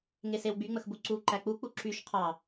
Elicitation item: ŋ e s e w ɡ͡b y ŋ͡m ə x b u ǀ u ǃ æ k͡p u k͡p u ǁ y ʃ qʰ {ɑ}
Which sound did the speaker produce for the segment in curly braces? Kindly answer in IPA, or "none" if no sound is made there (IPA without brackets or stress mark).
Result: ɑ